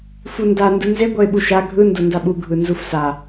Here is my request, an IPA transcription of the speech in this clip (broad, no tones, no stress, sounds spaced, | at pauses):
f u n d a n d ɯ n z e ɡʷ ʌ ɪ̯ ɓ u ʃ a ɡʱ ɯ n d o n d a ɓ u ɡʱ ɯ n z u f s a